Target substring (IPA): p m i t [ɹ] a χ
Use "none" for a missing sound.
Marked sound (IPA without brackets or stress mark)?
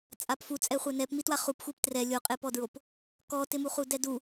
w